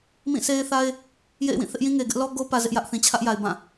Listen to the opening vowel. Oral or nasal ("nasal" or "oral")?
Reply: nasal